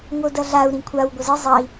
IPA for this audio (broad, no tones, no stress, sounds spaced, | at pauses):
ŋ o d ɐ ɮ a u̯ ɾ ĩ kʷʰ a w ɡʷ ɐ z ɨ zˤ ɐ i̯